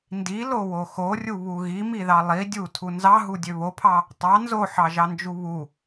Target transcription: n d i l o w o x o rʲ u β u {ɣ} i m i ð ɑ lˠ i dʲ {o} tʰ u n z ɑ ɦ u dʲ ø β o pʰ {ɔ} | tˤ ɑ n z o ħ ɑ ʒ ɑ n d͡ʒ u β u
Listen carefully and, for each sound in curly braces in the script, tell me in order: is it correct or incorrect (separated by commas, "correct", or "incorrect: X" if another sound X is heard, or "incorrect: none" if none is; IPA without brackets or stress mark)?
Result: correct, incorrect: u, incorrect: ɑ